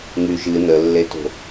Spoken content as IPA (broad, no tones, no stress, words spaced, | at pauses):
ŋy ʒɨ nəlːeto̤